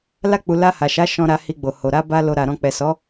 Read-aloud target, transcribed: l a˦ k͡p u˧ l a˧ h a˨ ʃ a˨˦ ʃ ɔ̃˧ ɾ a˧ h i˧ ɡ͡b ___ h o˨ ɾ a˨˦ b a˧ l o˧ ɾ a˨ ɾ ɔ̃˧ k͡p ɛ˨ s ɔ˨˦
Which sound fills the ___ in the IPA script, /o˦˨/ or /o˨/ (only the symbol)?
o˨